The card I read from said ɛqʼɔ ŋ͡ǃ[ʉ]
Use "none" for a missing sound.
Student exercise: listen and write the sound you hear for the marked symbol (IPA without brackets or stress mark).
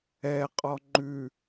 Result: ʉ